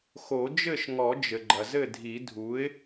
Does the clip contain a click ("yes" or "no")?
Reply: yes